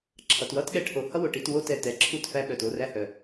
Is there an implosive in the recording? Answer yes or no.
yes